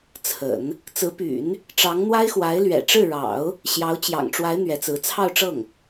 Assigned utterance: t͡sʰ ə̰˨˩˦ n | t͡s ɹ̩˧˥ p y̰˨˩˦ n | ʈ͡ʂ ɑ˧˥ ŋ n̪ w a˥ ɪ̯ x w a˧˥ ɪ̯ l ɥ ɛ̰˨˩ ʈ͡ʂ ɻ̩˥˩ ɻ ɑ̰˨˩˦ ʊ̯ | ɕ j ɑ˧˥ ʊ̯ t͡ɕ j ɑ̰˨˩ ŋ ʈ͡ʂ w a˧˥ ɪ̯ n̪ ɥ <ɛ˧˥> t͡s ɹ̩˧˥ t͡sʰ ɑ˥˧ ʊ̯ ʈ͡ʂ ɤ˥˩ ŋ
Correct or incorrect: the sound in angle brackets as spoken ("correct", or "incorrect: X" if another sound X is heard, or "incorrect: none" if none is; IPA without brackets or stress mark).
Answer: correct